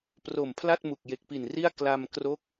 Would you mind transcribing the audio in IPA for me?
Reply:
p r o˨˩ m pʰ l a˥˩ t̚ m u˨˩ k̚ j e˨˩ k̚ p i˨˩ n r i˥˩ a̯ k l a˧ m k r o˦˥ k̚

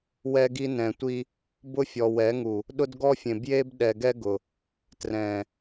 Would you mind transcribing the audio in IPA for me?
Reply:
w ɛ˦ ɡ i˦ n ɛ̃˨ tʷ i˦ | b ʊ˦ fʲ ɔ˨ w ɛ˨˦ ŋ u˨ | ɗ ʊ˦ d ɡ ɔ˦ fʲ ẽ˨ b j e˦ b ɗ ɛ˨ ɡ ɛ˦ ɡ ʊ˨ | t r ɛ̃˨

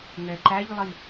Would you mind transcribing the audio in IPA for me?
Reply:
ŋ ɛ ǃ æ ʎ lˠ i

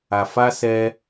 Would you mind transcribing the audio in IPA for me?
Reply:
a˨ f a˧ s ɛ˧

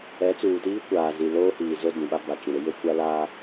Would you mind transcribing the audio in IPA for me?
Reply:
ɛ˨˦ t͡s uː˨ t iː˦ kʷ aː˨ z i˨ l oː˦ h iː˨ z o˦ d ĩ˨ ɓ a˦ b a˨ t͡ʃ ĩ˨ ɾ ɪ˦ j e˦ kʷ a˦ l aː˦

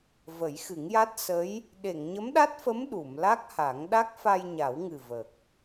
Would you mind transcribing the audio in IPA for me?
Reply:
v ə˨˩˦ j x ɨ˨˩˦ ŋ j a˦˥ t̚ s ə˧˥ j | ɗ e˨˩˨ ŋ ɲ ə˧˥ m ɗ a˦˥ t̚ f ə˧˥ m ɗ u˨˩˨ m l a˦˥ k̚ h a˨˩˦ ŋ ɗ a˦˥ k̚ f a˧ j ɲ a˨˩˦ w ŋ ɨ˨˩ v ə˨˩ k̚

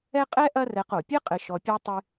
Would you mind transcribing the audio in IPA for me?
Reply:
ɛ˦ qʼ ɛ˥ ʔ ɐ˦ r ɛ˨ q o˩ pʲ ɘ˥ qʼ ɘ˨ ʃ ɔ˨ pʲ e˥ tˤ ɨ˦

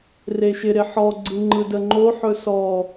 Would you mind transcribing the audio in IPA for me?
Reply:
r e ʃ ɪ ɾ ɪ ħ ɔ ɡ͡ǀ ɯ ŋ͡ǃ ɯ d ə ŋ͡ǃ o ħ ɵ s ɔ

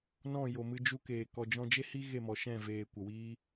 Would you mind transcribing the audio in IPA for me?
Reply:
n ɔ̃˦˨ j o˨ m ɨ˧ d͡ʒ u˦ k eː˨ k ɔ˨ d͡ʒ ɔ̃˧ d͡ʒ e˦ h i˦ ɣ e˦˨ m ɔ˨ ʃ ɛ̃˦˨ v eː˨ kʷ ə˨ w iː˦

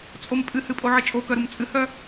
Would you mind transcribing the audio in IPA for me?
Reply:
t͡sʼ o m pʼ ɨ h ɨ pʼ o ʕ ɨ t͡ʃʼ o k œ ɾ u m t͡sʼ ɨ h œ

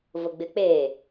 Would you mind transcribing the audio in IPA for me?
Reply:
v ʊ ɡ͡b ɪ k͡p eː

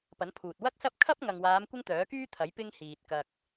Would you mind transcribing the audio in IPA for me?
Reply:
p ɐ˨˥ n pʰ uː˨ t̚ w ɐ˥ k̚ s ɐ˥ p̚ kʰ ɐ˥ p̚ ŋ ɐ˨ ŋ w aː˨˧ m kʷ ɪ˥ ŋ t̪ œː˨˥ k yː˥ t̪ʰ ɐ˨˥ j p ɪ˥ ŋ h iː˨ t̚ k ɐ˧ k̚

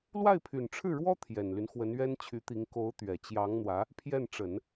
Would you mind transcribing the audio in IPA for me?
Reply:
l w a˥˩ ɪ̯ pʰ y˨˩ n ʈ͡ʂʰ ɻ̩˥˩ ɻ w ɔ˥ t̪ʰ j ɛ˨˩ n l y˦ n x w ə˧˥ n ɥ ɛ˥ n t͡ɕʰ y˧˥ t̪ i˧˥ ŋ k o˧˥ ʊ̯ t̪ ɥ ɛ˨˩ t͡ɕ j ɑ˧˥ ŋ n̪ w ä˧˥ | pʰ j ɛ˥˩ n ʈ͡ʂ ə˨˩˦ n

